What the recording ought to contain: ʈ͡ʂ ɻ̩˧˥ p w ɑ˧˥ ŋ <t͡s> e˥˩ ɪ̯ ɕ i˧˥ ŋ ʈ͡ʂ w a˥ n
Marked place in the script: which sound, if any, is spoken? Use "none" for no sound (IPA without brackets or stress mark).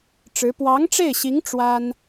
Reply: ʈ͡ʂ